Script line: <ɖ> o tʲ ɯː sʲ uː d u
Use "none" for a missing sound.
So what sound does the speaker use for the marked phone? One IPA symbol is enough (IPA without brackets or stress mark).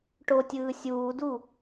ʈ